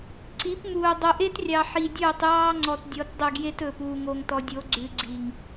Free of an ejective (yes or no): yes